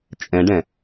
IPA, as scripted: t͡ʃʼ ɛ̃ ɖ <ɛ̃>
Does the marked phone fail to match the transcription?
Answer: no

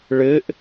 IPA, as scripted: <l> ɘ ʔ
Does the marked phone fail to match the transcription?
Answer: yes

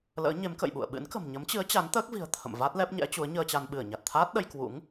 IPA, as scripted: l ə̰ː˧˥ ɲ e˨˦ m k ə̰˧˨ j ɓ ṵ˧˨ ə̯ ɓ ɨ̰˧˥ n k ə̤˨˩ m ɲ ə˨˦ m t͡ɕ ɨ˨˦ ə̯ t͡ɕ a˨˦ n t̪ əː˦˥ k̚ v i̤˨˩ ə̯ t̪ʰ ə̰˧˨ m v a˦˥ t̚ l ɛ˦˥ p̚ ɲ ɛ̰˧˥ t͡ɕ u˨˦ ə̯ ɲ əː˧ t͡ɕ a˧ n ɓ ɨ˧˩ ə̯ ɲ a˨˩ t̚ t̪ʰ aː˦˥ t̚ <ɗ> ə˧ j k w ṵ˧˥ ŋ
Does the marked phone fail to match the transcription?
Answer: no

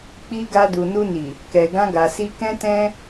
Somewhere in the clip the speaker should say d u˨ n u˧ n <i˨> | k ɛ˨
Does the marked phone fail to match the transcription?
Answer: no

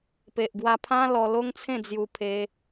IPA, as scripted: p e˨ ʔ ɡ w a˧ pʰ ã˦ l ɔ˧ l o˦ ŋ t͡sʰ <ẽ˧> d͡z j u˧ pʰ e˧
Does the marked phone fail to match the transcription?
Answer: yes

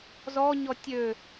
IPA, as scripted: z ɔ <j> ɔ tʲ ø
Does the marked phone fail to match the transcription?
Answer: yes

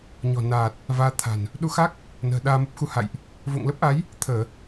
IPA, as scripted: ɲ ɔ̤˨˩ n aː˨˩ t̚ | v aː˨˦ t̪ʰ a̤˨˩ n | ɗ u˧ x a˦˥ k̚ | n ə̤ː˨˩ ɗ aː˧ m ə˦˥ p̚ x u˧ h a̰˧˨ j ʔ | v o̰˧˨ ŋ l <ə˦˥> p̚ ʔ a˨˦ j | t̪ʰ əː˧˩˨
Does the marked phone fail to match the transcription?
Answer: no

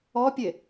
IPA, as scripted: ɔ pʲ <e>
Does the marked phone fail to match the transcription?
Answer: no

